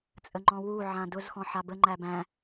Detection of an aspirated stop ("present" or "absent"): absent